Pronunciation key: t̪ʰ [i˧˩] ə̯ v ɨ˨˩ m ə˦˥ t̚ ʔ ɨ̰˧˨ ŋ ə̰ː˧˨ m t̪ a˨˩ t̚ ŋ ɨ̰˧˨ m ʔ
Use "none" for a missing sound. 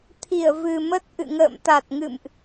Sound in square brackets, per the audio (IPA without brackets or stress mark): i˧˩